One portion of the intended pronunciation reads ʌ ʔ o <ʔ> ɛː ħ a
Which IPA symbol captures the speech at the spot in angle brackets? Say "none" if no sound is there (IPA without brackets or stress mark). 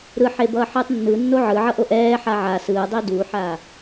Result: ʔ